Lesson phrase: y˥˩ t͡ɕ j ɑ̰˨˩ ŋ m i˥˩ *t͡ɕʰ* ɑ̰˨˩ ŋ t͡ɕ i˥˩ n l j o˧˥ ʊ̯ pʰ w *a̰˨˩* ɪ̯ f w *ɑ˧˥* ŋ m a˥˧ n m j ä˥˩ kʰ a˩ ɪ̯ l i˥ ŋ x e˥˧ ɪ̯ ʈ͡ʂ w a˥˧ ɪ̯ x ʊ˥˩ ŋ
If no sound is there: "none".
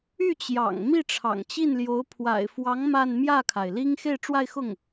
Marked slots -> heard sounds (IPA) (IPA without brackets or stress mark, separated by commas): ʈ͡ʂʰ, a̰˨˩, ɑ˧˥